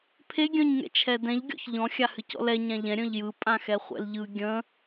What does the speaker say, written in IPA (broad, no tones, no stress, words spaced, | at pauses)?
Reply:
pʰe ɡʲœ̃ɲŋɛ̰t͡ʃʰɛdɛ̃ʎ ɡʲɔ̰çʎɔ̃ xʲahɨcɔ̰lɛ ɲãʎɛ̃ ɾʲœ̃ʎjɯ pʼãxɛχʷɛ̰lʎɯ ɡʲə̃